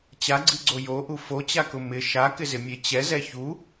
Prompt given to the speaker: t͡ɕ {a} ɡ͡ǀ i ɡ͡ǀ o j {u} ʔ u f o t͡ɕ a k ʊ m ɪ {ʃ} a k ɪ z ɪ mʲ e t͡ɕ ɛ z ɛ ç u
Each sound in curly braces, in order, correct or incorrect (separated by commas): correct, incorrect, correct